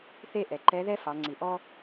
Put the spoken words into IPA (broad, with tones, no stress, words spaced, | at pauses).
θe˥ʔɛ˩ ǃɛ˧˥ðɛ˥ fɑ˩˧ŋ͡ǀi˩ʔɔ˥